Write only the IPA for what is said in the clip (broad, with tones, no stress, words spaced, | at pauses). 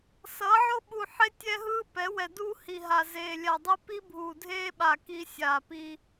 sʌː˨˦ʕo˦ɓu˨ħe˦ tʲɛ˦ɦɯː˦ pɛ˨˦wɛ˨ duː˦hi˨ ɦa˨ zeː˨lʲa˨dˤi˦ pi˦bʱuː˨dʱeː˦ɓa˨ ki˦ sʲaː˨pi˦